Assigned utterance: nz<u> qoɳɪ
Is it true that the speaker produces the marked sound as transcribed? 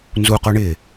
yes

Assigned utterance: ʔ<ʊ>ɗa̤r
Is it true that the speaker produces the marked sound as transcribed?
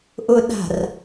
yes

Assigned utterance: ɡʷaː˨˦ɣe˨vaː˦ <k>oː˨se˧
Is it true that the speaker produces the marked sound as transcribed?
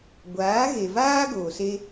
no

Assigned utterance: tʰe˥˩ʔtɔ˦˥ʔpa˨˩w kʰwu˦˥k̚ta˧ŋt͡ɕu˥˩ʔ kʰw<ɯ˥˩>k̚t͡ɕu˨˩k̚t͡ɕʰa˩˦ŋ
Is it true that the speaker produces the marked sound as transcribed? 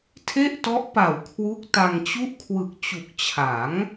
no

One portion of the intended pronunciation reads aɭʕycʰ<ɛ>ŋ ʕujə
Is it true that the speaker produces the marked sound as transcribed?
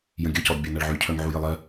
no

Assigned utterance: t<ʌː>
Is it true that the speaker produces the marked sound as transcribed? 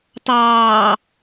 no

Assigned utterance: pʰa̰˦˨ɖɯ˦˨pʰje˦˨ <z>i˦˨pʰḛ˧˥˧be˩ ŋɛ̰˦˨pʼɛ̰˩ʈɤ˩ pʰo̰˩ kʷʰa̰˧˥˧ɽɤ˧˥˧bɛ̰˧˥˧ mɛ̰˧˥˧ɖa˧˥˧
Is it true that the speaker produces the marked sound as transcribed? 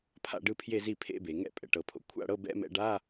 yes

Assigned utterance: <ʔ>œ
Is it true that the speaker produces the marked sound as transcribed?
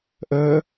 yes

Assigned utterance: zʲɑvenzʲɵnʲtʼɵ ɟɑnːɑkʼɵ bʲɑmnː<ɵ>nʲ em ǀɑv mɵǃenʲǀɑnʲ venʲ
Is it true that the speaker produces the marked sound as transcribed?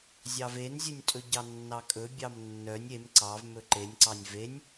no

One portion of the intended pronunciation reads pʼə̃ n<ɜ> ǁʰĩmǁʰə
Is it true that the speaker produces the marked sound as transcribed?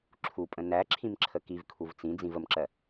no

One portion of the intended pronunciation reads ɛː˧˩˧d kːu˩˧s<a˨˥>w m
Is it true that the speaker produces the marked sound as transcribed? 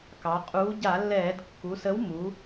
no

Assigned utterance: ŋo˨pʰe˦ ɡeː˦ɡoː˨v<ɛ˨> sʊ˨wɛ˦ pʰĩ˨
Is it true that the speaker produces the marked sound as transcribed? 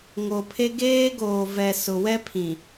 yes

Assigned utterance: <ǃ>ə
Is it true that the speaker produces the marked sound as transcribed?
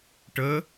no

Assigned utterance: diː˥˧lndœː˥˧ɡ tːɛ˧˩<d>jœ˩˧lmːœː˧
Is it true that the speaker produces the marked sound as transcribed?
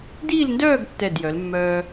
yes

